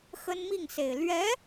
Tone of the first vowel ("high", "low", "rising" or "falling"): high